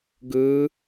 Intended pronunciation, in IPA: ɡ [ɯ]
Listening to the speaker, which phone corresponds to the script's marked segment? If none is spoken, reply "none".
ɯ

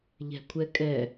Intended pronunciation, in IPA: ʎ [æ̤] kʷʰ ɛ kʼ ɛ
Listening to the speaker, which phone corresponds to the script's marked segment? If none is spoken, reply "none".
æ̤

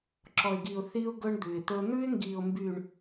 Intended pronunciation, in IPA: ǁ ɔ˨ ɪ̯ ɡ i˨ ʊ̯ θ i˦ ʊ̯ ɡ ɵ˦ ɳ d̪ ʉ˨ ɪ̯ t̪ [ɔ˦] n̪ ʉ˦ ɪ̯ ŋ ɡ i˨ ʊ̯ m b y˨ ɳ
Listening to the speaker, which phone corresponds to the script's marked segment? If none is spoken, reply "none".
ɵ˦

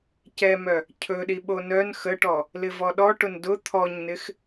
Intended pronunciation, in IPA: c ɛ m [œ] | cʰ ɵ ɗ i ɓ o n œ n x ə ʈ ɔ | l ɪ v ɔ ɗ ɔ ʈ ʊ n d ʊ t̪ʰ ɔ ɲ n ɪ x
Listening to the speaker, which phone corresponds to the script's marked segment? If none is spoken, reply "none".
œ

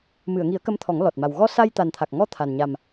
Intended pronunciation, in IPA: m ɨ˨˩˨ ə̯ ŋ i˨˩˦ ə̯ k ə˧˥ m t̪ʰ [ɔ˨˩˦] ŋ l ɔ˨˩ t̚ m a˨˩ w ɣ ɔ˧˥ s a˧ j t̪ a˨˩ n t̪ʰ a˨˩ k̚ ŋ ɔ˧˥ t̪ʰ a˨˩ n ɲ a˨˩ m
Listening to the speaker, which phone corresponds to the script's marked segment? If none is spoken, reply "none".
ɔ˨˩˦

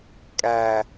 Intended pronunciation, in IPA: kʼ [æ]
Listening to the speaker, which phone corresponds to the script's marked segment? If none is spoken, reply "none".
æ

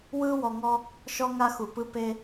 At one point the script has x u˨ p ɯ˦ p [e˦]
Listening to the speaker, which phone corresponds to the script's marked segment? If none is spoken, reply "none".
e˦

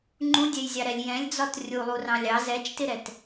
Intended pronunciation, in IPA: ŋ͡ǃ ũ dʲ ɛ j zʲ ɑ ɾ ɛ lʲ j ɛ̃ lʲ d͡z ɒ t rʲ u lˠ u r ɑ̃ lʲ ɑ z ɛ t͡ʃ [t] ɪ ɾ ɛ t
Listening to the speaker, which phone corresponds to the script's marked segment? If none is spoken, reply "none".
t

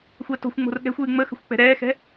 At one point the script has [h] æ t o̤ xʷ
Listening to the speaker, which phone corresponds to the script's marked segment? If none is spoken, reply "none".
xʷ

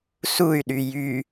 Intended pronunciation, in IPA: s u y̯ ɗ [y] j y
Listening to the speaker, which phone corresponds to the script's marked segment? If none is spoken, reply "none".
y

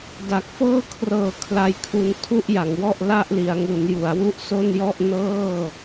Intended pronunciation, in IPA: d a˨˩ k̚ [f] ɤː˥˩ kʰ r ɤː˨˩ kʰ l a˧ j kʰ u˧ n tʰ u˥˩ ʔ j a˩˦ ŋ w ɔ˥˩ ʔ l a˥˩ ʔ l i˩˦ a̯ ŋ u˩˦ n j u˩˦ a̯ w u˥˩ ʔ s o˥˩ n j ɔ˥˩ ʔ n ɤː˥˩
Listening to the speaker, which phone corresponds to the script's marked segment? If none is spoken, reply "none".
f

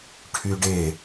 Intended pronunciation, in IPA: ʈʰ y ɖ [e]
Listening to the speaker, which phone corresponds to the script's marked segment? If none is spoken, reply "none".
e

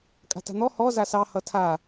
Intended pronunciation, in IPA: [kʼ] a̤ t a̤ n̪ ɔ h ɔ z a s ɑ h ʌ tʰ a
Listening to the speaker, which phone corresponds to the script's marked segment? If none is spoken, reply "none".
kʼ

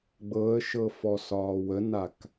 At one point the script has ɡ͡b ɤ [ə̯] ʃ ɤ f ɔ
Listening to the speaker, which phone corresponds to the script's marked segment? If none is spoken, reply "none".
ə̯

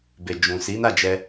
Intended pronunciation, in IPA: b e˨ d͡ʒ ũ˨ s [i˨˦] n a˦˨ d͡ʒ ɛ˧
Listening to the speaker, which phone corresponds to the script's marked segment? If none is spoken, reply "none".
i˨˦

